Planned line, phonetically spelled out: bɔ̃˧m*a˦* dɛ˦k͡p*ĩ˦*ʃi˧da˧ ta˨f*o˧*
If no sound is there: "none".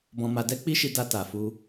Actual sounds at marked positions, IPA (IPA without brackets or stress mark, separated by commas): a˧, i˦, u˧